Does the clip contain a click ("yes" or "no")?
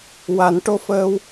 no